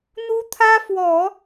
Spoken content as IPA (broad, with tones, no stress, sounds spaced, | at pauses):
n̪ u˥ t̪ʰ ä˥ f w ɔ˨˩˦